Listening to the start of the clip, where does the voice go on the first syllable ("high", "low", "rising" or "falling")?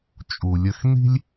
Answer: low